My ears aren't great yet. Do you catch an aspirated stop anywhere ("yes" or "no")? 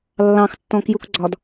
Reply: no